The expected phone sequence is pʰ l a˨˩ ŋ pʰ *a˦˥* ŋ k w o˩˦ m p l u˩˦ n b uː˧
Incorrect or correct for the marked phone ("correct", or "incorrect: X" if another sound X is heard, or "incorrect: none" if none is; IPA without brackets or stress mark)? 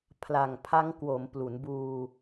correct